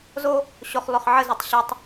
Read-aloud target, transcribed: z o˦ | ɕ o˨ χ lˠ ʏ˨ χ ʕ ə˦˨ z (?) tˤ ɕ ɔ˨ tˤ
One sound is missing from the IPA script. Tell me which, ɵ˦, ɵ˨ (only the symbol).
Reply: ɵ˨